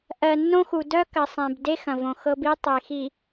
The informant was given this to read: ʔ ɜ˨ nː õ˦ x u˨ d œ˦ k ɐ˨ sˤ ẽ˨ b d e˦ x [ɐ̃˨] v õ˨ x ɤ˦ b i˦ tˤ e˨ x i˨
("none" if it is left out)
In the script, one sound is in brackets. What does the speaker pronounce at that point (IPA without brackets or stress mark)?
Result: ɐ̃˨